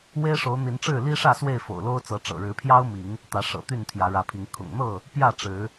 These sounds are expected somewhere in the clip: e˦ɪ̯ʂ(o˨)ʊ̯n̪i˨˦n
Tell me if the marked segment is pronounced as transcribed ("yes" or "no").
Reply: no